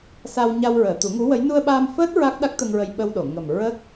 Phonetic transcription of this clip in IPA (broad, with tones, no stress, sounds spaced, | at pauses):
s a˧ w ɲ a˧ w ɹ əː˨˩˨ t̪ u˨˩˦ ŋ u˧˥ w ə˧˥ j n u˧ ə̯ ɓ aː˧ m f əː˦˥ t̚ ɹ a˦˥ k̚ ɗ a˦˥ k̚ t̪ ə˧ ŋ ɹ ə˧ j ɓ ə˧ w ɗ o˨˩˨ ŋ ə˨˩ m ɹ ə˦˥ k̚